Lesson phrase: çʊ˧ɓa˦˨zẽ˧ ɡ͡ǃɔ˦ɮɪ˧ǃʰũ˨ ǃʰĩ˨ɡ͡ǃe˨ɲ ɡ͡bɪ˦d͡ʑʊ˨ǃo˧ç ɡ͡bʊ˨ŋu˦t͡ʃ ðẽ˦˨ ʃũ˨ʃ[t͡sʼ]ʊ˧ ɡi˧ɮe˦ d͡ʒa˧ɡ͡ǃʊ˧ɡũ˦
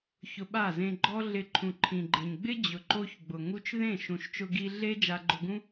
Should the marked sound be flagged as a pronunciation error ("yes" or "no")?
yes